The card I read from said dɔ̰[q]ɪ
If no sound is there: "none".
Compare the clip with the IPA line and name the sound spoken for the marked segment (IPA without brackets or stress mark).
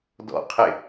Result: qʰ